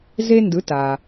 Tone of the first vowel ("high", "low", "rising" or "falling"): high